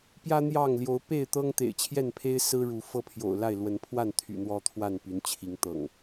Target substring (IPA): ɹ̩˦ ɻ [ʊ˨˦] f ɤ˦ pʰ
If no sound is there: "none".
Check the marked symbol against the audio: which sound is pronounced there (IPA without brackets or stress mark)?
u˨˦